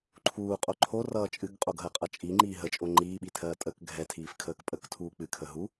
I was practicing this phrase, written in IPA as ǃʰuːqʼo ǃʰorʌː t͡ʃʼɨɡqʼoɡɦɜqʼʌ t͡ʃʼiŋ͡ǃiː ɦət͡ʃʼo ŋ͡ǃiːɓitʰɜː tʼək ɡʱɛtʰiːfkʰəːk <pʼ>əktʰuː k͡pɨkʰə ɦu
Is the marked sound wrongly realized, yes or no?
no